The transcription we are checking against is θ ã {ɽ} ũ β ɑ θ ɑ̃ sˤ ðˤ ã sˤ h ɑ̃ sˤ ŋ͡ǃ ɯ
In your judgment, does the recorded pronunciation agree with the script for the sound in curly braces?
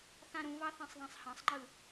no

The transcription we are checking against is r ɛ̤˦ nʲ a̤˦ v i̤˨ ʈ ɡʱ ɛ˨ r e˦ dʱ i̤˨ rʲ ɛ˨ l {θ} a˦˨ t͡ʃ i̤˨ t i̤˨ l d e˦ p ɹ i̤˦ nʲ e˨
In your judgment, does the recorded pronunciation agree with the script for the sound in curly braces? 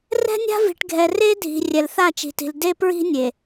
yes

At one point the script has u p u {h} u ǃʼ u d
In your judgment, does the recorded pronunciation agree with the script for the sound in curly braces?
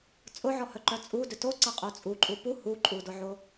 yes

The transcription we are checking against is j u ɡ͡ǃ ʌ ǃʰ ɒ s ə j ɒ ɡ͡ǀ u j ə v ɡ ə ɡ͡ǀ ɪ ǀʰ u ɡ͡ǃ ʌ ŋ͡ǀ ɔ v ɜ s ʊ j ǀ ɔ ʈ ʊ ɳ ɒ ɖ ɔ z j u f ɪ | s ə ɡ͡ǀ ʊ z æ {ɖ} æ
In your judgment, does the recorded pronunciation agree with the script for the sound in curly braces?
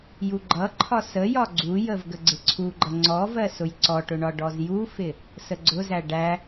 yes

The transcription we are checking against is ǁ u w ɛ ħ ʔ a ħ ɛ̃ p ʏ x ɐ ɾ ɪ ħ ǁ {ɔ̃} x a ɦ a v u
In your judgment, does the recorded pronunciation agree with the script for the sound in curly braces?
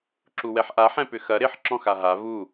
yes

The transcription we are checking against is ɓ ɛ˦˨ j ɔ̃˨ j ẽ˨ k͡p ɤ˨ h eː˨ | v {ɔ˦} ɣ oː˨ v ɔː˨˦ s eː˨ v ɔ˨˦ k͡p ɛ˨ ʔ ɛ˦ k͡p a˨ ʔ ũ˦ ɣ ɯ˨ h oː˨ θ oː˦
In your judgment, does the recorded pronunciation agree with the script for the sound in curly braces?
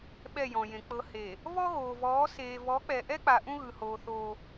yes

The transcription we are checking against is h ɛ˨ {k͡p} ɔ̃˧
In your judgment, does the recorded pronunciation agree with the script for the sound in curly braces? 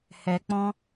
yes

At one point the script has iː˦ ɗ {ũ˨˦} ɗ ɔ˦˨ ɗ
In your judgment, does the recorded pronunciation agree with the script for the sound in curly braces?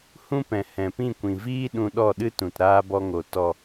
no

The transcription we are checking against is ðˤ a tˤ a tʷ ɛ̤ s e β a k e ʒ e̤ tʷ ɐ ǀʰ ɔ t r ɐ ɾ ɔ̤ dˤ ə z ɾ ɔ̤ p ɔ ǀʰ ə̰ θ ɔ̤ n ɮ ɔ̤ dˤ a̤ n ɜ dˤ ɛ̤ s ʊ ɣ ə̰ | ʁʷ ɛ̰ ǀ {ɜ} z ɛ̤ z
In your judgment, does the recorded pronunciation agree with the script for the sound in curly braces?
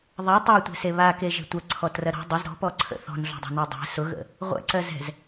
yes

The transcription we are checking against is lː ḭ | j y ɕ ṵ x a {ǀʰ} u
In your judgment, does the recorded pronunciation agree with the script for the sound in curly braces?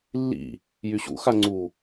no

